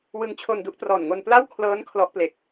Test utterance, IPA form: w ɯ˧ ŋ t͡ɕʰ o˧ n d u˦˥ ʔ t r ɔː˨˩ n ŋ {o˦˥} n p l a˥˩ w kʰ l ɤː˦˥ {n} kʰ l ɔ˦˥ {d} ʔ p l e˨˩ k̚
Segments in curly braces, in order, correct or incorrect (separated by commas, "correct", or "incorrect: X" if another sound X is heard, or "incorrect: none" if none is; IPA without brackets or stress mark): incorrect: o˧, correct, incorrect: none